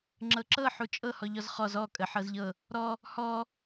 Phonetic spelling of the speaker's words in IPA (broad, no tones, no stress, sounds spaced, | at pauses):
ŋ͡ǁ ɤ ǁ ɤ ħ u t͡ʃʼ ɤ h ɔ ʎ ɔ z χ ɔ z ɔ kʼ ə ħ ɤ z ʎ ɤ | ɾ ɔ | h ɔ